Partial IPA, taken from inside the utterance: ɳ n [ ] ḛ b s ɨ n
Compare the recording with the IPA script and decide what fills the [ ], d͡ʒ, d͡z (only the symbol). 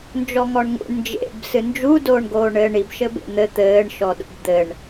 d͡ʒ